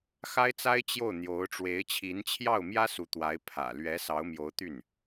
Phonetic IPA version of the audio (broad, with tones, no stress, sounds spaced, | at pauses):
x a˥ ɪ̯ t͡s a˥ ɪ̯ t͡ɕ j o˥˩ ʊ̯ n̪ j o˧˥ ʊ̯ ʈ͡ʂ w e˧˥ ɪ̯ t͡ɕʰ i˧˥ n t͡ɕʰ j ɑ˥˩ ʊ̯ m j ä˥ s u˧˥ t̪ w a˧˥ ɪ̯ pʰ ä̰˨˩ l ɥ ɛ˧˥ s ɑ˧˥ ʊ̯ m j o˧˥ ʊ̯ t̪ y˥˩ n